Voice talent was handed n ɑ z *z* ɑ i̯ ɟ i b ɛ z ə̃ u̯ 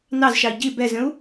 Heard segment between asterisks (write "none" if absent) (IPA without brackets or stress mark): ʃ